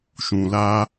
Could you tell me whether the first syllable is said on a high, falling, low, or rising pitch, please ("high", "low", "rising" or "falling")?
low